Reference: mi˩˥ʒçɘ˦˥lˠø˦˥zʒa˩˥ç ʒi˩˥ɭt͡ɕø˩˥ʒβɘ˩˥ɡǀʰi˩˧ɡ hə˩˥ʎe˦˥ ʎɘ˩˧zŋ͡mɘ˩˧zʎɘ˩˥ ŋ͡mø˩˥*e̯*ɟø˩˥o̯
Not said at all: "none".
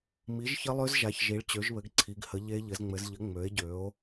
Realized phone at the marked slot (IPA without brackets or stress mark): e̯